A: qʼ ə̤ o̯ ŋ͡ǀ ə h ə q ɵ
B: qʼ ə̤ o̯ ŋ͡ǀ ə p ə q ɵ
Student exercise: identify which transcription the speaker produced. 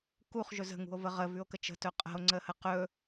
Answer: A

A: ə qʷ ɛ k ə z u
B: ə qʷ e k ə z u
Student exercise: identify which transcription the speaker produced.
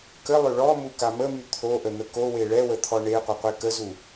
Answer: B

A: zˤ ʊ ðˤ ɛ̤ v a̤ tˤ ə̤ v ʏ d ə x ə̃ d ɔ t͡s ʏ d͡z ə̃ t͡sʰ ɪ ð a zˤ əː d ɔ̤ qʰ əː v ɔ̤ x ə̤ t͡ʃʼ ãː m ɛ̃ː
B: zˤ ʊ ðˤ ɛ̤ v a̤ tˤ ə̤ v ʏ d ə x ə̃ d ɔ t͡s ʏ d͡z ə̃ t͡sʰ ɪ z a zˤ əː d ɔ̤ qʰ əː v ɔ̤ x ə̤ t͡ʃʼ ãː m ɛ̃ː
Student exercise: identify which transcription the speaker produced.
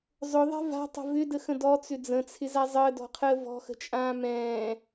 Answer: B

